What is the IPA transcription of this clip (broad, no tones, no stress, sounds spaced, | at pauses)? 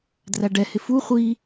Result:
d r æ ɖ ɛ h ɪ f u χʷ i